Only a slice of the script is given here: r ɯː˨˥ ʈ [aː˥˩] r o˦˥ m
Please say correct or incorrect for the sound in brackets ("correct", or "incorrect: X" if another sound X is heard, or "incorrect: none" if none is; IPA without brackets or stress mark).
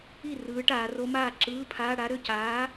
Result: incorrect: aː˩˧